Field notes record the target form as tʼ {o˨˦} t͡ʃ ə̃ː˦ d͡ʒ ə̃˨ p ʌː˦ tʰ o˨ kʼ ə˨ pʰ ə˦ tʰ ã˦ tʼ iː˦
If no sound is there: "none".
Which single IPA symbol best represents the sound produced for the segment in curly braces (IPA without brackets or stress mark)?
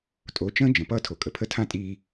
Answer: o˨˦